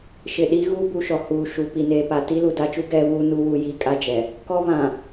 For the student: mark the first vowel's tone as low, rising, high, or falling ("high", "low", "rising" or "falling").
low